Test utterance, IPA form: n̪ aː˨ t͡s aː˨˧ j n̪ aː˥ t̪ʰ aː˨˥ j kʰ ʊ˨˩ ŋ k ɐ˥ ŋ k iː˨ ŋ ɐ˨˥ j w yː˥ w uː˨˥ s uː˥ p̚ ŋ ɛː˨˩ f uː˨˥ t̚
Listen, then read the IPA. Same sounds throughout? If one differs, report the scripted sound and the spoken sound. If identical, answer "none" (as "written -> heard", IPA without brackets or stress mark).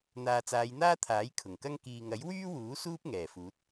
none